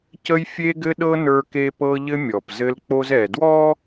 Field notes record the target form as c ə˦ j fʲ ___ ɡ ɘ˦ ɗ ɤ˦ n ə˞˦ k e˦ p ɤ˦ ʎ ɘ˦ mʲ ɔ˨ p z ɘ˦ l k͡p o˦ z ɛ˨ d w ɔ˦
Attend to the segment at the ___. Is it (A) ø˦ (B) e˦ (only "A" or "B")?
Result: B